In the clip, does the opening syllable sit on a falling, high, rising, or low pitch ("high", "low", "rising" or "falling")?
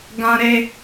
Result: high